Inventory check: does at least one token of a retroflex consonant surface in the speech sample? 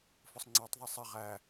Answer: no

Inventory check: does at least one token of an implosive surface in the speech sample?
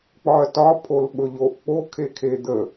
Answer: yes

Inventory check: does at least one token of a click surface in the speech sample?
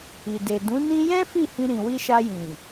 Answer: no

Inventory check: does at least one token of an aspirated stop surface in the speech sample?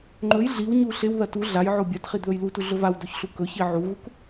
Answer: no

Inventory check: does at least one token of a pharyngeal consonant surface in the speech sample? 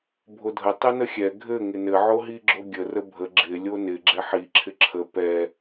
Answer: yes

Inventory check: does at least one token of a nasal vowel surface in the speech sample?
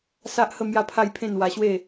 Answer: yes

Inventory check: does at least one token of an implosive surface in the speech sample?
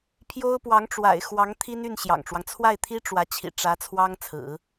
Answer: no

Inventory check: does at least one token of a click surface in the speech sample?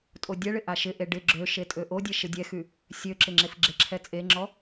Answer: yes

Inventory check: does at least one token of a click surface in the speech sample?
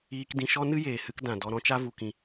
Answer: no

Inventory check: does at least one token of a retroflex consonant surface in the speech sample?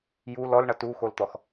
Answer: yes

